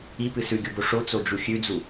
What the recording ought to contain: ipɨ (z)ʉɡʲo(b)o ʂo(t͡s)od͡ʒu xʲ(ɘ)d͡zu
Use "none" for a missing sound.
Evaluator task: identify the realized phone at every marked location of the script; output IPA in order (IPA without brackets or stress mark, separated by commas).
s, b, t͡s, ʉ